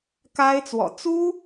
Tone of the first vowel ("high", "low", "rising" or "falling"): high